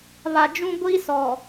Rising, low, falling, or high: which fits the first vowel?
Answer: low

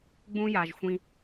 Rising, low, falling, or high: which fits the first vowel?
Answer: high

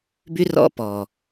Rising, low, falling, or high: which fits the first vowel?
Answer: high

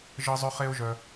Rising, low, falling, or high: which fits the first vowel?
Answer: high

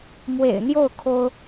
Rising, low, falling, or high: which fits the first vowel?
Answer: low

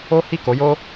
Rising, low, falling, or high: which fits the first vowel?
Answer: high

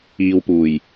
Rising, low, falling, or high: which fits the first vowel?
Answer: low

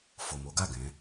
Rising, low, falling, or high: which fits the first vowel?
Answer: low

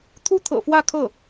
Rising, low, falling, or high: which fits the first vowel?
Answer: high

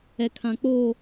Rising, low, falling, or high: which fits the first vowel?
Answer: low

